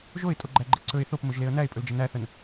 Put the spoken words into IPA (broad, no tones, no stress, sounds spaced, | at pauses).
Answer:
ʒ o ɪ̯ tʼ o ɡ͡ǃ æ ɡ͡ǃ e ǀ ɵ ɪ̯ θ o p m ɵ ʒ l e ə̯ n æ ɪ̯ pʼ ɵ l d͡ʒ ə n æ θ ə n